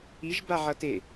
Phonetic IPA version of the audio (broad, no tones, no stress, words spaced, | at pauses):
iʒbaʕʌ te